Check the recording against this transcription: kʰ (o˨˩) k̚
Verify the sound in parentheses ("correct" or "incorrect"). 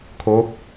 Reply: incorrect